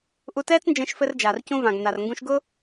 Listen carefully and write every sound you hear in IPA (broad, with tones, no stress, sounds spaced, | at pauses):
ʔ u˧ t ɛː˥ t͡s n d͡ʒ ɛ̃˧ ʃ f ɘ˧ r d͡ʒ aː˩ r c ũ˧ v ã˩ ɡ n a˩ r ŋ ɡ ũ˧ ʃ ɡ ʊ˥